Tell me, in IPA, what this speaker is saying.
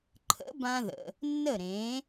ǃʰ ə̰˩˥ b ã˧ ð ə̰˩ | nː ə˥˩ ɾ ẽ˩˥

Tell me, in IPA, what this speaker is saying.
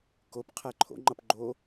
k o p qʰ æ ǃʰ o̰ ŋ͡ǃ ʌ p ɡ͡ǃ o

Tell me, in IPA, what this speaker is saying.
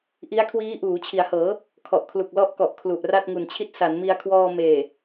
ʔ i˦˥ a̯ kʰ w iː˦˥ ʔ uː˩˦ t͡ɕʰ i˩˦ a̯ h ɤː˩˦ | kʰ ɔ˨˩ ʔ kʰ l u˨˩ k̚ l ɔ˦˥ ʔ k ɔ˨˩ ʔ kʰ l u˨˩ ʔ r a˥˩ t̚ ŋ u˨˩ n t͡ɕʰ i˥˩ t̚ s a˩˦ n m i˧ a̯ kʰ w ɔː˧ m eː˨˩

